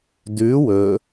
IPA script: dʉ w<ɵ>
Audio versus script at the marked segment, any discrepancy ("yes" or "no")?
no